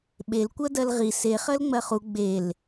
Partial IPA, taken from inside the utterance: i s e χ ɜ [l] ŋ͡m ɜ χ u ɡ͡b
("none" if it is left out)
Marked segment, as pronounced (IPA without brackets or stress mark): l